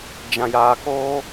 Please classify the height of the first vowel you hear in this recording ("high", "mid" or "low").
low